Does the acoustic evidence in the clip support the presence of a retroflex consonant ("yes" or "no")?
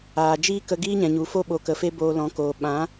no